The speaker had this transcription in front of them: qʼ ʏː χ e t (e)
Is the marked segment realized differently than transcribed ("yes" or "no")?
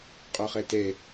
no